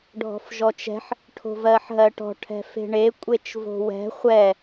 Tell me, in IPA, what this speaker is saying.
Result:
ɖʱɔ̤fʒɔt͡ʃɛ̤ħ | ʈʰo̤vɜħɦɜʈɔ̤ ʈʰɛ̤fe̤ɳe kʷʼet͡ʃvo̤wɛ̤ χʷɛ

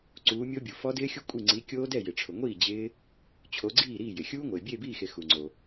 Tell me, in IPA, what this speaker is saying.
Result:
ǀuː˨˦mʲo˦˥bʲu˩ fɔ˦˥dɪː˦˥xʲu˦˥ kʷʼi˥˩ ŋ͡ǀi˨˦kʲoː˦˥dɛ˥˩ jɪ˩ʈ͡ʂʰʊ˩ŋʷiː˥˩ d͡ʑɪː˦˥ | t͡ɕʰo˨˦ ɡ͡ǀiː˥˩ɾiː˥˩jɪ˩ xʲuː˦˥ŋʷɪː˩ bʲeː˥˩biː˥˩xe˩ xu˩ŋ͡ǀo˩

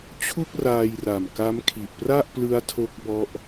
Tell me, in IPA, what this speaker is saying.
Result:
t͡ɕʰu˥˩k̚raː˧j ra˨˩mka˦˥mkʰi˨˩ʔ pra˥˩ʔplɯ˦˥a̯ tʰo˦˥k̚bɔ˦˥ʔ

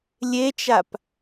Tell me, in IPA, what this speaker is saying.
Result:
lʲet͡ʃap

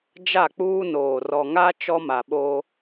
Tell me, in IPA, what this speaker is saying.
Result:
d͡ʒa˦˨k͡puː˦noː˨ rɔ˨ŋa˦ t͡ʃɔ˦ma˨ɓo˦

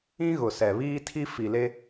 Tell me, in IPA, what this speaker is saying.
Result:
ĩ˦ ɣʊ˨sɛ˨ βiː˦tʰi˦ fi˨le˦

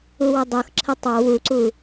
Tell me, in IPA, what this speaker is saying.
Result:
uwɤdˤɤxǁʰə tˤɑ wuǀu

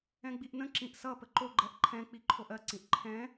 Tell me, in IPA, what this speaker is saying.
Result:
ɛ̃ɡ͡biʔnə̃ ǁĩʔsʌ pəǃo ɡ͡ǃɛʔǃʰɛ̃ k͡piǃʰoʔɜ ǀĩʔǃʰɛ̃

